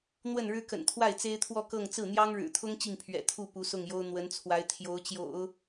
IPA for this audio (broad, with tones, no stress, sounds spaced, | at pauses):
n̪ w ə˥˩ n ɻ ɻ̩˥ k ə̰˨˩ n t̪ʰ w a˥˩ ɪ̯ t͡s e˥ ɪ̯ t̪ʰ w ɔ˥˧ k ɤ˥˧ ŋ t͡s ɹ̩˥˩ n̪ j ɑ˥ ŋ ɻ ɻ̩˨˩ t̪ʰ ʊ˥ ŋ t͡ɕ i˥˩ ŋ pʰ ɥ ɛ̰˨˩ t̪ʰ u˥˩ p u˧˥ s ʊ˥˩ ŋ j o˥ ʊ̯ n̪ w ə˧˥ n t͡sʰ w a˧˥ ɪ̯ t̪ʰ j o˧˥ ʊ̯ t͡ɕ j o̰˨˩˦ ʊ̯